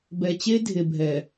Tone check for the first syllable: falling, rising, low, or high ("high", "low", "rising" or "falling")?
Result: low